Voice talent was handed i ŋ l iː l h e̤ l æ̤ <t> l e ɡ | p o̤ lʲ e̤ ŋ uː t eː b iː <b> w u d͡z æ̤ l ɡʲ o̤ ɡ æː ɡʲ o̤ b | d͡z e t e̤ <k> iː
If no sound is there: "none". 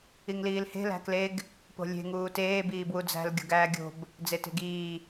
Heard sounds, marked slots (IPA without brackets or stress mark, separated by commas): k, b, ɡ